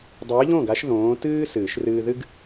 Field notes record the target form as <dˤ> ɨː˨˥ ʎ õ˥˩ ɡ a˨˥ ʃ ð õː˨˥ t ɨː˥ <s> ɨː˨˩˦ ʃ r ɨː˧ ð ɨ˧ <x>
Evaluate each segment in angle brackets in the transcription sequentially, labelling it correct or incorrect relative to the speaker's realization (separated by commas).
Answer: correct, correct, incorrect